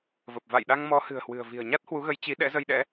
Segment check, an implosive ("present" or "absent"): present